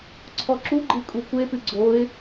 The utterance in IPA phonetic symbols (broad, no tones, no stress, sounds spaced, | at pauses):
ǀʰ ɔ ǁ u ɡ͡ǃ ɨ kʼ u kʷ e p ɨ ɡ͡ǀ o ɪ̯